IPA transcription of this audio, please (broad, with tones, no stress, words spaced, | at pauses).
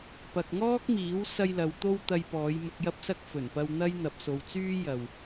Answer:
pɐ˨k̚ŋɔː˥k̚miː˨˥w sɐ˧jlɐ˨˧w t̪o˥wt̪ɐ˧jpɔː˨˧j mʊ˨k̚jɐ˧p̚sɐ˧k̚ fɵ˨˩npɐ˧w n̪ɐ˥j n̪ɐ˨p̚so˨wt͡syː˥ jɐ˨w